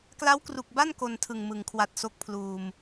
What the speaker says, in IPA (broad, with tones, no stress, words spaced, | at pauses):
kla˦˥wkru˨˩k̚ba˥˩n ko˧ntʰɯ˨˩ŋmɯ˩˦ŋkʰwa˨˩t̚ so˦˥k̚pʰluː˨˩m